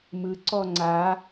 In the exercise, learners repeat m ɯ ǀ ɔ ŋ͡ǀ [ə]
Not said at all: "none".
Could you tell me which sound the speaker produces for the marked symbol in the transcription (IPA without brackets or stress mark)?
a